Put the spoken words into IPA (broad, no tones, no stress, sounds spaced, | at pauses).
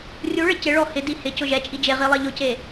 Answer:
rʲ u ɭ ɪ c ɪ ɭ ɔ h ɪ d i h ɪ c ʊ ʒ ɛ t͡ʃʼ i d͡ʒ e ʁ i lˠ e ʎ ʊ c e